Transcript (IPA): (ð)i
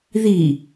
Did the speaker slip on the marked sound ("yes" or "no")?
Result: no